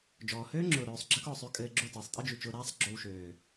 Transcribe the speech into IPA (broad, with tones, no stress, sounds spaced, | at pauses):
d͡ʒ ɔː˨ h øː˦ ŋ͡ǁ ʊː˨ ɾ øː˨ sˤ ɡ͡ǁ ə˦ k ɔ˨ sˤ y˧ kʼ ɘː˧ ɡ͡ǁ o˦˨ t ɘː˨ sˤ tʼ ɘ˦ d͡ʒ y˨ t͡ʃ ʊː˧ ɾ aː˦ sˤ ɡ͡ǁ o˧ w ʃ øː˨